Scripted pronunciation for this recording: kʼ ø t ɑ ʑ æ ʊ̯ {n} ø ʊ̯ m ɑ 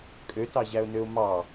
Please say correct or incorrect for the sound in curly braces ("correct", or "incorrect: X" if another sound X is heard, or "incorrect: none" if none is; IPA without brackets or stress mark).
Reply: correct